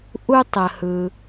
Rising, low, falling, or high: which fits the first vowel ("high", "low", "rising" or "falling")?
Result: high